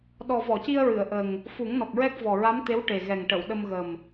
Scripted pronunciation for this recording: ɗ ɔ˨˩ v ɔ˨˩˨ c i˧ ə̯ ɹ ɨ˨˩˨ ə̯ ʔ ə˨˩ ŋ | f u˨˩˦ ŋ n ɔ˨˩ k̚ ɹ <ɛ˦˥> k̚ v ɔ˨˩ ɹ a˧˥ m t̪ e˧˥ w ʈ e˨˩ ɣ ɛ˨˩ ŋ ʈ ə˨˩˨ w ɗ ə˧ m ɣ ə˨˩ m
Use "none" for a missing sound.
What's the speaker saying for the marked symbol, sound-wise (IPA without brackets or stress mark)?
ɛ˦˥